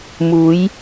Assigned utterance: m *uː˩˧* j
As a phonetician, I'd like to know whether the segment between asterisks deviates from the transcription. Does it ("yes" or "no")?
no